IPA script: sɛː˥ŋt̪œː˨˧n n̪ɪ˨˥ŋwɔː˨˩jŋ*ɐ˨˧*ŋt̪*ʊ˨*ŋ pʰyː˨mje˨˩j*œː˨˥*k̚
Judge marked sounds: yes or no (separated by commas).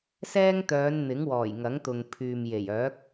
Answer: no, yes, yes